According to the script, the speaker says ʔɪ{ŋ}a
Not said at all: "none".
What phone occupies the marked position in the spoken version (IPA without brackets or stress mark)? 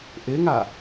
ŋ